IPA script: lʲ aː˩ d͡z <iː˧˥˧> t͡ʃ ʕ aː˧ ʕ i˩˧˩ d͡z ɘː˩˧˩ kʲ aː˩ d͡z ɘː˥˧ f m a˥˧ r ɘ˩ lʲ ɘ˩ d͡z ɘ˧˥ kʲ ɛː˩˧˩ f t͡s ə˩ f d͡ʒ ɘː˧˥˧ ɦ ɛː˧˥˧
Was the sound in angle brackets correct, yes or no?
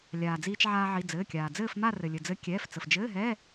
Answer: no